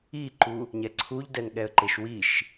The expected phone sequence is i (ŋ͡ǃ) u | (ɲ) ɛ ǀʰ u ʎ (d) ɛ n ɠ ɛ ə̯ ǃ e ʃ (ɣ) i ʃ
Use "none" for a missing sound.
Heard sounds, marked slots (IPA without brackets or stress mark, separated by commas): ǃ, ɲ, d, w